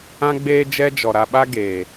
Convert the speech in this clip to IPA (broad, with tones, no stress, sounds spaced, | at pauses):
ã˦ ɡ͡b eː˦ d͡ʒ ɛ˦ d͡ʒ ɔ˨ ɾ a˧ ɓ a˦ ɡ eː˨